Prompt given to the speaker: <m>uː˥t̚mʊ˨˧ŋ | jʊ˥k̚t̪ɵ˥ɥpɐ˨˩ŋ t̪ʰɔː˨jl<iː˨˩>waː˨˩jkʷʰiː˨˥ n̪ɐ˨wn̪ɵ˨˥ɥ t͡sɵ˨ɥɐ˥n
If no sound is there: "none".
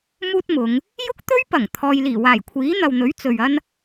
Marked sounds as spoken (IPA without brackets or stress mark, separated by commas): m, iː˨˩